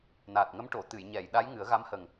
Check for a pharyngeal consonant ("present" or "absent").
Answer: absent